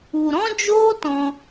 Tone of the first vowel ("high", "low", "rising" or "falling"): low